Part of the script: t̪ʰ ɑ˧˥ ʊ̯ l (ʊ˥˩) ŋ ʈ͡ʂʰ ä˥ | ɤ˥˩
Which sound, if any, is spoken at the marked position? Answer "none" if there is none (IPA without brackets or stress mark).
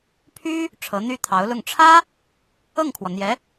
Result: ʊ˥˩